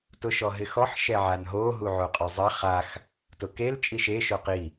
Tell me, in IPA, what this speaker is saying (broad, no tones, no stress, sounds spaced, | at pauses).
t ʊ ʃ ɔ ɦ ɪ x ɔ ħ ʃ ɛ ʕ a n ɦ o ɦ u ʕ o qʼ ɔ zˤ ɛ χ a x | t ʊ k e l t͡ʃʼ i ʃ e ʃ o q i